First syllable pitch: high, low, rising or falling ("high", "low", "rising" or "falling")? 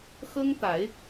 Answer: high